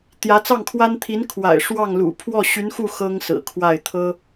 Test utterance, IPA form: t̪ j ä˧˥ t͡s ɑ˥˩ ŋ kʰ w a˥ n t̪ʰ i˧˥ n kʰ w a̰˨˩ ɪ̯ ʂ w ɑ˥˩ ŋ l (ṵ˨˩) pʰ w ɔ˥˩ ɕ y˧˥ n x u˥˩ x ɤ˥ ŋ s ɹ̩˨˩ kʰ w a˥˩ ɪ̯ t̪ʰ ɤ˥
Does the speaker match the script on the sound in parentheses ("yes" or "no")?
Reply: yes